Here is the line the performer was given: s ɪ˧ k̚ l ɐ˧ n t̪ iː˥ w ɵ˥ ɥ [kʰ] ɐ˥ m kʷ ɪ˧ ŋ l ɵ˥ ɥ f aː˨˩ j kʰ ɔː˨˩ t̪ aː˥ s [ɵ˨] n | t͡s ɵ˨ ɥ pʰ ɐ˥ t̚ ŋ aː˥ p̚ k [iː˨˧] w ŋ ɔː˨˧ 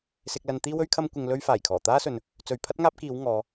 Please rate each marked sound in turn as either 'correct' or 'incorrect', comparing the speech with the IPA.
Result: correct, correct, correct

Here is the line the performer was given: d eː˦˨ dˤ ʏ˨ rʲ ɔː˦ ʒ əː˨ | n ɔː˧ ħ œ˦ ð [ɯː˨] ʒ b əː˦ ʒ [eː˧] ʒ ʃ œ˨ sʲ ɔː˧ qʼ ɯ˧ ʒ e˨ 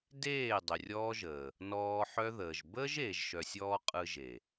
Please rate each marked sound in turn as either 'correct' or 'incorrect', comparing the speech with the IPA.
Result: incorrect, incorrect

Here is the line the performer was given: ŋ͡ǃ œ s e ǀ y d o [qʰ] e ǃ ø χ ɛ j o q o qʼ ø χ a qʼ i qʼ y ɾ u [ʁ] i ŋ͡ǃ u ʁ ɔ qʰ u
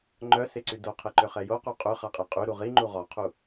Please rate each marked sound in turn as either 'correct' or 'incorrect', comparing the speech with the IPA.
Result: correct, correct

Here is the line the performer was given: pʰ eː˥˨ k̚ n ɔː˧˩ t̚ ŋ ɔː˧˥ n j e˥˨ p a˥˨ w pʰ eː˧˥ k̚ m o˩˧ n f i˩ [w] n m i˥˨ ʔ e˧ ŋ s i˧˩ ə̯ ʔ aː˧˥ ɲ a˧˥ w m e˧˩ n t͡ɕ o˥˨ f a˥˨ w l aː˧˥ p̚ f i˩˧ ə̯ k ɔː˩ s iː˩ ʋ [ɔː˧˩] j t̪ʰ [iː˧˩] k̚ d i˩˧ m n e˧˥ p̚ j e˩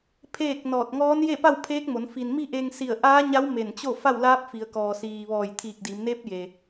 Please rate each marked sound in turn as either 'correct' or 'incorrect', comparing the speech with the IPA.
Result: incorrect, correct, correct

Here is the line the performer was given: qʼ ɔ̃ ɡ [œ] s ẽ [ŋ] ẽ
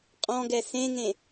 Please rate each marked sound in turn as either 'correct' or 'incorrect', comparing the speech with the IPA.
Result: incorrect, correct

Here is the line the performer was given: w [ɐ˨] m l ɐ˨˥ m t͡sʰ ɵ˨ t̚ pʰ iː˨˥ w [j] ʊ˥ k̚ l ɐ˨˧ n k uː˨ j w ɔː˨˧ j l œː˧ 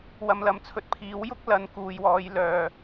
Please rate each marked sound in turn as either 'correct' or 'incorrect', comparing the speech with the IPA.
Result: correct, correct

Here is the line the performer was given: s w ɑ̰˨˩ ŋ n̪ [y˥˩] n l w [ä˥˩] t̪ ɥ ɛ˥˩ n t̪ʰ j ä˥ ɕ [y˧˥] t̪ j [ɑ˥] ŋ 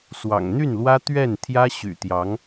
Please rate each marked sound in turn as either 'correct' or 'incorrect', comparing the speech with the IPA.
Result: correct, incorrect, incorrect, incorrect

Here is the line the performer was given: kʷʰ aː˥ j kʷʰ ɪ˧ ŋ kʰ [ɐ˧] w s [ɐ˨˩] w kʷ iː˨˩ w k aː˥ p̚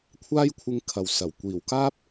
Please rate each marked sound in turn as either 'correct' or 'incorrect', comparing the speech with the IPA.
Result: incorrect, correct

